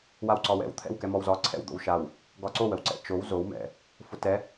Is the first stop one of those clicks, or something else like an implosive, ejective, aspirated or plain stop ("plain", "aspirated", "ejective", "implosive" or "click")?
click